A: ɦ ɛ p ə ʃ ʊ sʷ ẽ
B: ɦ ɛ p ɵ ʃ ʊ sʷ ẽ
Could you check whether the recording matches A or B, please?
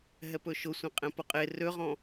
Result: B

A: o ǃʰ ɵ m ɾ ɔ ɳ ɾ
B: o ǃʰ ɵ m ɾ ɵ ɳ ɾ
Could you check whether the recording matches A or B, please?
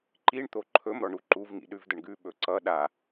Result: A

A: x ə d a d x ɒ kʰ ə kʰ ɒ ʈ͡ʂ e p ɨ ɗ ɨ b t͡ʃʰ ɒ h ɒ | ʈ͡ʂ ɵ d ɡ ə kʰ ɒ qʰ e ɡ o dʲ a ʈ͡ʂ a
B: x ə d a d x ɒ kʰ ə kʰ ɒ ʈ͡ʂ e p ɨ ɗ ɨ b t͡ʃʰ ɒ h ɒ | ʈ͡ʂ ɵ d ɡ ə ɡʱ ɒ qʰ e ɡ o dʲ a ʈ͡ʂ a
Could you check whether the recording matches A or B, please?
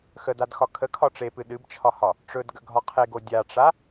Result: B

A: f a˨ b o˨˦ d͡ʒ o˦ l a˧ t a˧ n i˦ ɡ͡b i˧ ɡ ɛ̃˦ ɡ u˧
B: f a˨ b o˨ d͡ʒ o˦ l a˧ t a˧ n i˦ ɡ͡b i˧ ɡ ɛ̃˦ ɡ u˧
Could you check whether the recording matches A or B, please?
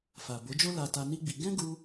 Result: A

